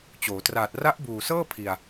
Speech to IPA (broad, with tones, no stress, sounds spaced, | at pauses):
t͡ɕ oː˩˦ t r aː˨˩ t̚ r a˦˥ ʔ b uː˨˩ s ɤː˥˩ pʰ i˧ a̯